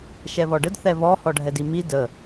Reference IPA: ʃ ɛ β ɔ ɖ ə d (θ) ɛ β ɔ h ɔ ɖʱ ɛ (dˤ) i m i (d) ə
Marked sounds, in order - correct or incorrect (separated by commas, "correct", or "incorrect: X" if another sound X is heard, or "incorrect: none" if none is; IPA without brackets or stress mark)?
correct, incorrect: d, correct